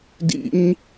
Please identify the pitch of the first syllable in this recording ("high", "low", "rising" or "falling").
high